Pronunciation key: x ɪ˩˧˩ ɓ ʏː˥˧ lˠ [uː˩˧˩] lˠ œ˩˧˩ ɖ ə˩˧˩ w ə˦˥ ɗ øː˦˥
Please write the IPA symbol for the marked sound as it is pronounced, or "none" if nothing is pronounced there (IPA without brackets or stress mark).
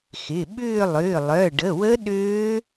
ʏː˩˧˩